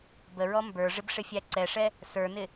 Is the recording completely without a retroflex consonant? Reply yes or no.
no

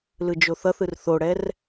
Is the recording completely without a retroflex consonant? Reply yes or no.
no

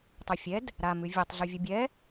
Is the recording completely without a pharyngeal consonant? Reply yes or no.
yes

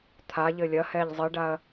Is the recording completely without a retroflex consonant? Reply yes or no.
no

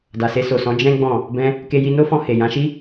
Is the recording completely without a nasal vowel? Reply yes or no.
no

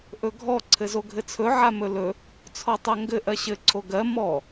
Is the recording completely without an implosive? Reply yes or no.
yes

